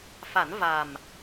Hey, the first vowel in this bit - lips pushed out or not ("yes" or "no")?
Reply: no